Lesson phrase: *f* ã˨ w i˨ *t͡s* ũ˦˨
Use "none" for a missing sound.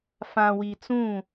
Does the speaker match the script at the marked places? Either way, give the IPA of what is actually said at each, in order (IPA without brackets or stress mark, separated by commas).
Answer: f, t͡s